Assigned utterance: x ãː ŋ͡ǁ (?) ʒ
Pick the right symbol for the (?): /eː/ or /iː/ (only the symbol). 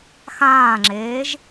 eː